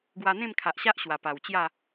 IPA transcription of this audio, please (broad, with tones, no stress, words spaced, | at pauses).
ɡwa˧n̪ẽ˥˧mkʰa˨ʔɕa˦ʔ ɕwa˨˩pa˨˩wt͡ɕja˥˧